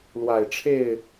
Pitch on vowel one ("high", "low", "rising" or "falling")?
low